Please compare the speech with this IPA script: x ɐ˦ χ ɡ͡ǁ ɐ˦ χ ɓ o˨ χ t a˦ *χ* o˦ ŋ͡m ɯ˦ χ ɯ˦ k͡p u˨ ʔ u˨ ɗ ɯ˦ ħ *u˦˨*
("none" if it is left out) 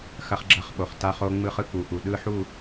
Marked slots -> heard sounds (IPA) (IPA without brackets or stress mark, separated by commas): χ, u˦˨